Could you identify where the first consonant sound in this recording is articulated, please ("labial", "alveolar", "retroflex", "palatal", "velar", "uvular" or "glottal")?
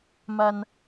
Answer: labial